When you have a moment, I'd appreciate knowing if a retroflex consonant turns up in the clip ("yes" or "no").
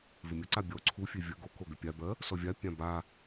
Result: no